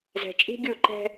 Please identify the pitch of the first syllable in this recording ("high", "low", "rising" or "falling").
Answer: low